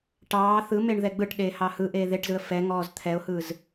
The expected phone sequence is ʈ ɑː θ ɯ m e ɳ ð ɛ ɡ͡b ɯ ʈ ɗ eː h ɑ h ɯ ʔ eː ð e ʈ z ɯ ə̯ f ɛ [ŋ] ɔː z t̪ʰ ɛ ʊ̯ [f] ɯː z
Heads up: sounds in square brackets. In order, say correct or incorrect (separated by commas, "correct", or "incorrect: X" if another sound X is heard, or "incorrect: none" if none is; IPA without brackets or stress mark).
correct, incorrect: h